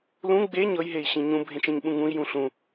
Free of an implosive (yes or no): no